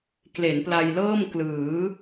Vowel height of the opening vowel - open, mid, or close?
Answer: mid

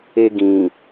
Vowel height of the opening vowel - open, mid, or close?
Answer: mid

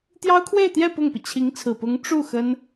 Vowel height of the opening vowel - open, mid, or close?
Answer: open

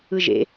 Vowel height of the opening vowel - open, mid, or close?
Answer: close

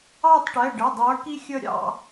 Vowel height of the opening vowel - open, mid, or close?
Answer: open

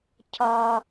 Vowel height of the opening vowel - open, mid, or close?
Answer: open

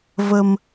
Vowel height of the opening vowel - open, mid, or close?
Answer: mid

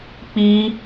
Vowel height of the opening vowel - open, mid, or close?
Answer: close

